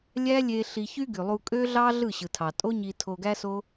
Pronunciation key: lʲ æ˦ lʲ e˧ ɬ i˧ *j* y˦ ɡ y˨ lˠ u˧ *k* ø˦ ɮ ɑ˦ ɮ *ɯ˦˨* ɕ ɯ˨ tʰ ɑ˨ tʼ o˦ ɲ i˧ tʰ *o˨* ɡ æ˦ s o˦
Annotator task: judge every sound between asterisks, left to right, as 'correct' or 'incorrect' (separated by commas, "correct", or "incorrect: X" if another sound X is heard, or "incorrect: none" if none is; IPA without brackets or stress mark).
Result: incorrect: ç, incorrect: kʼ, correct, incorrect: o˧